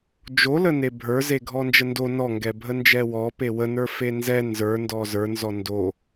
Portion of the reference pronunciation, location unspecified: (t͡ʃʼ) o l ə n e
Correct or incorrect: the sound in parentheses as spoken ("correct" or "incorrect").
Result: incorrect